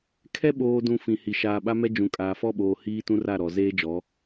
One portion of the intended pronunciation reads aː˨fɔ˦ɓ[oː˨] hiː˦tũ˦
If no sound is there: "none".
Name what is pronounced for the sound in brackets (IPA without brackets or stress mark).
oː˨